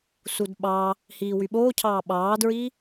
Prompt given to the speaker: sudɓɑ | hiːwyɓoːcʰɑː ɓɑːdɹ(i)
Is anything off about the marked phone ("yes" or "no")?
no